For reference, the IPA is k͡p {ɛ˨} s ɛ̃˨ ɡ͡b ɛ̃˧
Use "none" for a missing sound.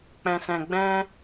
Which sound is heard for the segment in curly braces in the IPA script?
ɛ̃˨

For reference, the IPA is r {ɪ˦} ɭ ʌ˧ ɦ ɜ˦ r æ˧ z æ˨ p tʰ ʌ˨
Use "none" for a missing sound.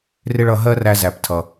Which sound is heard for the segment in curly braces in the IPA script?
ɪ˦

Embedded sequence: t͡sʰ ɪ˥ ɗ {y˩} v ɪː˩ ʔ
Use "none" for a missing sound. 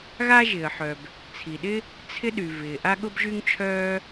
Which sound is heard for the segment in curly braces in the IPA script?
y˩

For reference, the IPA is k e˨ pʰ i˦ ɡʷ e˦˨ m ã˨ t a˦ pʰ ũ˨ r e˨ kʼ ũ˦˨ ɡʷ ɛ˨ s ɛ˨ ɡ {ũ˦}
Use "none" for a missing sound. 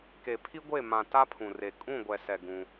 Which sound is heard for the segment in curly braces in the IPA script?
ũ˦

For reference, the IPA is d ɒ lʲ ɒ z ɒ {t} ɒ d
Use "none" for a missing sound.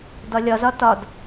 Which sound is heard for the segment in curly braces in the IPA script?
t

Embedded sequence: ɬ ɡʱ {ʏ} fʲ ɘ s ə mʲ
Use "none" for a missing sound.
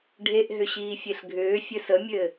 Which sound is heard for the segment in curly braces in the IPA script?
ʏː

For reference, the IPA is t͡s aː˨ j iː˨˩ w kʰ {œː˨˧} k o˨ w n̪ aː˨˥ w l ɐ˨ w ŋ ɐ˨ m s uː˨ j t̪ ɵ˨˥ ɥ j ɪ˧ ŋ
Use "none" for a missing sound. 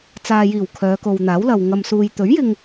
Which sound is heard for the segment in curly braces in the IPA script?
œː˨˧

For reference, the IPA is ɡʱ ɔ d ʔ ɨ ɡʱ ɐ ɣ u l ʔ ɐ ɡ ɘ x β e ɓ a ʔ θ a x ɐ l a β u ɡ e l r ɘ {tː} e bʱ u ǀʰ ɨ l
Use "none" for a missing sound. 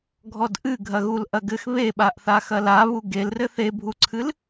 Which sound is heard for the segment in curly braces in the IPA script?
θ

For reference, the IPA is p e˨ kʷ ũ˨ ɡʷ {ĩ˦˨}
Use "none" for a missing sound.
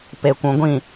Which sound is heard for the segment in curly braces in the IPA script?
ĩ˦˨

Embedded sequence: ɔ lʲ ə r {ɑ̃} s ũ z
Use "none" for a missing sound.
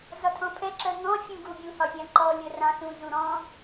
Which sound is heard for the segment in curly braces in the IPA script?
ɑ̃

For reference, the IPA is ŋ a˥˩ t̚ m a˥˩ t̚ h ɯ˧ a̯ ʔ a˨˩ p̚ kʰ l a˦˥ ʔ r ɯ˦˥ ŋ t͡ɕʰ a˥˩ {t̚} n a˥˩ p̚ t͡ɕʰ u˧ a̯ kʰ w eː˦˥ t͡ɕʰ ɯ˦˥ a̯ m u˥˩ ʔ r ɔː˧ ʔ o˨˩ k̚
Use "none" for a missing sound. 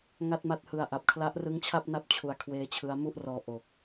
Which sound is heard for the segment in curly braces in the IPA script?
p̚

